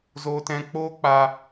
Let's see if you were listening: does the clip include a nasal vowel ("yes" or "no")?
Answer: yes